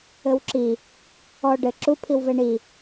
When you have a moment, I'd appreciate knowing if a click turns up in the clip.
yes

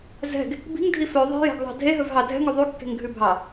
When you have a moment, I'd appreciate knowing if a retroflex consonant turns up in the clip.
no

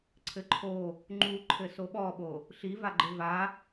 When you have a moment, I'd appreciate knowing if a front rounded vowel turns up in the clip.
no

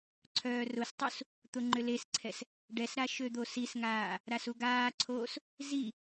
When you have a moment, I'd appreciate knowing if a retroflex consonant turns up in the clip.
yes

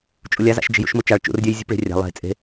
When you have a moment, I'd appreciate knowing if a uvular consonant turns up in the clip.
no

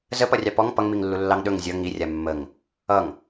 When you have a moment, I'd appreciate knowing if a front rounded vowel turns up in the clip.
no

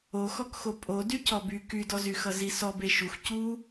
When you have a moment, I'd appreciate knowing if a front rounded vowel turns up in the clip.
yes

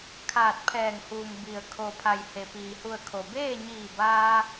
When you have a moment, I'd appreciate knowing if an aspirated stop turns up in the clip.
yes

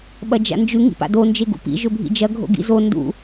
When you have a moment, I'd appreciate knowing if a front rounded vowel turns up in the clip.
no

